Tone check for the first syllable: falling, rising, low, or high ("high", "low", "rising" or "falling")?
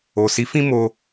low